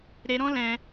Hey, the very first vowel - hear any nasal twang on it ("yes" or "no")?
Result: no